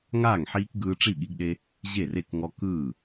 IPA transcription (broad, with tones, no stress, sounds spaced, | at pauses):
ŋ aː˥˩ ŋ ħ iː˦ k ɡ ɯː˦ ʈ͡ʂ i˥˩ ɠ i˦ ɡ ɗ e˦ | ʑ e˥˩ r e˥˩ k ŋ ɔ˦ k ɯː˥˩